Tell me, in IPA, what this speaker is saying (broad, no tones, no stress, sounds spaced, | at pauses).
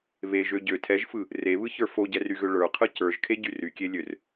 β e ʒ ø ɟ ø tʰ ɛ ʒ f ɯ | r e β ɯ ç ə˞ f o ɟ ɛ r y ɣ ø ɭ ə˞ qʰ ɯ c ə˞ ʒ kʰ e ɟ y r y kʲ e lʲ ø r